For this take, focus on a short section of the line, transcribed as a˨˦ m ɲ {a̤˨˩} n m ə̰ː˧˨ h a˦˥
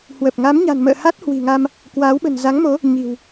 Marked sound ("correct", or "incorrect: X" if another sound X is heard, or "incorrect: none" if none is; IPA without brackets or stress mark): correct